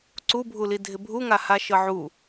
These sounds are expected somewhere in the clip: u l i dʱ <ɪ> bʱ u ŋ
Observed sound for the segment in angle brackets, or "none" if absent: ɪ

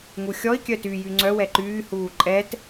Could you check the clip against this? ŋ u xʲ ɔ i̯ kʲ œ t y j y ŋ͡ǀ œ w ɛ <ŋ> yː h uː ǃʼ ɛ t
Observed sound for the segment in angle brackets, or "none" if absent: ǃ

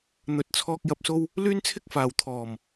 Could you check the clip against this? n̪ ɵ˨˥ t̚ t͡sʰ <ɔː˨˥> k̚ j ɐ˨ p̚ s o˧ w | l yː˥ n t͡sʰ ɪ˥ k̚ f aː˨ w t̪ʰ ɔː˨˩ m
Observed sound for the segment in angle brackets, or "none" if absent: ɔː˧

